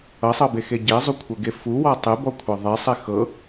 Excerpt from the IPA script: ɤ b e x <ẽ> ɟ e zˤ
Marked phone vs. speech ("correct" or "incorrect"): incorrect